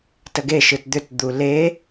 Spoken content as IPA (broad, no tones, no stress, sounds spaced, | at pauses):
t ə ɡ e ʃ ɯ t d̪ ʏ t d̪ u l e